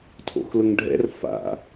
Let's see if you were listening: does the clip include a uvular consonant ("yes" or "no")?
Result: no